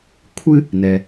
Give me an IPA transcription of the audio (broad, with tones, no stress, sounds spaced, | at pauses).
kʷʰ ɨ˦ | n ɛ˩